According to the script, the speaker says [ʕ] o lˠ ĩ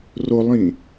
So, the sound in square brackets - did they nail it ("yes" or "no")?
no